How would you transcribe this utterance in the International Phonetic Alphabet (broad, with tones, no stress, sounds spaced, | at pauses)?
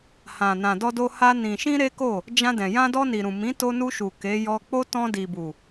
h ã˨ n ã˨ d ɔ˧ d o˧ h a˧ n ĩ˨ ʃ ĩ˧ ɾ e˦ k o˦˨ | d͡ʒ ã˧ d ɛ̃˨ j ã˧ d ɔ˧ n i˨ ɾ ũ˨ m ĩ˨˦ t o˧ n u˧ ʃ u˨ k e˨˦ j ɔ˧ k͡p o˦ t ɔ̃˧ d i˨ b u˨